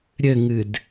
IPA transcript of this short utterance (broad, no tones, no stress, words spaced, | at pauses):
ɾʲɘŋɨd